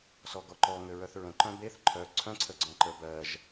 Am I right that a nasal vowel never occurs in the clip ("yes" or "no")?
no